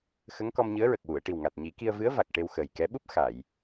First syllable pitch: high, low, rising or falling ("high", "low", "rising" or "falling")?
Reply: rising